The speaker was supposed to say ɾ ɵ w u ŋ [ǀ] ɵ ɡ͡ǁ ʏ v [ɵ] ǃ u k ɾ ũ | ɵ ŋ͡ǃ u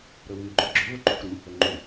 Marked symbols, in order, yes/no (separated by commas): no, yes